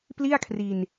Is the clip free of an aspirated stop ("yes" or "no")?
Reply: no